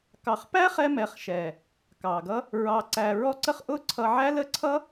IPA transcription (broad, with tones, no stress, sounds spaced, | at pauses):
k ɑ˨ χ p æ˦ χ ɛ˧ m ɛ˨ χ ʃ ɛ˨ | k ɑ˨ ɡ ʌ˦ | ɹ ɑ˨ ǀ æ˨ ɹ ɔ˧ ǀ ə˧ χ ʔ ʊ˦ ǀʰ ʌ˧ ʕ æ˦ l ə˦ ǀʰ ʌ˦